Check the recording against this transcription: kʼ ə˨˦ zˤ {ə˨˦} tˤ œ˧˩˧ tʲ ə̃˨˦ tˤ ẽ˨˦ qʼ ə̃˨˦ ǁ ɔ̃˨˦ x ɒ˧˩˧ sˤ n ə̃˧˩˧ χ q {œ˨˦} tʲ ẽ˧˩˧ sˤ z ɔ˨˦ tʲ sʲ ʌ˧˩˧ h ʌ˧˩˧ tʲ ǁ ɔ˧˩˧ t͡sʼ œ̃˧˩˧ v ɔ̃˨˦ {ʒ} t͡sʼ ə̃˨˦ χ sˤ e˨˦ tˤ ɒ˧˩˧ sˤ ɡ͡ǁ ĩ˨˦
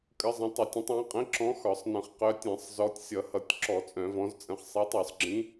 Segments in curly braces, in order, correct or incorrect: incorrect, correct, incorrect

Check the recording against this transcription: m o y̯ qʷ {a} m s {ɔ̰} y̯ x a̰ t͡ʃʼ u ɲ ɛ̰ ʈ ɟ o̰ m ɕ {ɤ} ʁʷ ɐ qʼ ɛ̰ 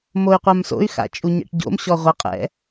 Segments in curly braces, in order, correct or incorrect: correct, incorrect, incorrect

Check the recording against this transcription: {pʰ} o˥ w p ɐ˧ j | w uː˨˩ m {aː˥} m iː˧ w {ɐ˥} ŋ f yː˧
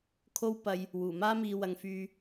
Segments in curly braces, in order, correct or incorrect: incorrect, correct, incorrect

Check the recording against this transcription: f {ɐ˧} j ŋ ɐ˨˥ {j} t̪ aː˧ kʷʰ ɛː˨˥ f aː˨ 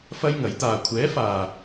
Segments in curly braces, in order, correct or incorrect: incorrect, correct

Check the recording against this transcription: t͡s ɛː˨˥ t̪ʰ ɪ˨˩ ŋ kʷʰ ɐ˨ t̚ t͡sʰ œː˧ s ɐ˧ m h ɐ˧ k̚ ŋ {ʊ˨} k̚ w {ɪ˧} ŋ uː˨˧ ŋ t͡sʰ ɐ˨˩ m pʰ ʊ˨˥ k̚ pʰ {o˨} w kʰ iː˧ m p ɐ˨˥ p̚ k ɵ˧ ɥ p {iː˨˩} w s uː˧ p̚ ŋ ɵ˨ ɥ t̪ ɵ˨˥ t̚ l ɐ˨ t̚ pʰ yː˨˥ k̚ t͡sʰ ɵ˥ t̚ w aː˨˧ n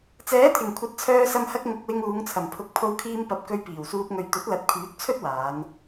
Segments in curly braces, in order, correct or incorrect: correct, correct, incorrect, correct

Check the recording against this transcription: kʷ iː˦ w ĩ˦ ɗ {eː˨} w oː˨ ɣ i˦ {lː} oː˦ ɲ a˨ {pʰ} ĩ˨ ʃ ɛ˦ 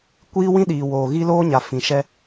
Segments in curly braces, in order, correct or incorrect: incorrect, incorrect, incorrect

